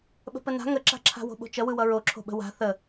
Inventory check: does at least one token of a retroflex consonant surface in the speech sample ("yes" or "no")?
no